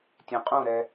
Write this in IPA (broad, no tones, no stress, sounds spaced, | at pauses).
tʲ ɛ̃ qʼ ũ ɾ ɛ